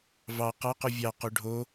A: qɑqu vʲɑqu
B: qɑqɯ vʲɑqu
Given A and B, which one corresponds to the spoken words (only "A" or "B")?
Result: A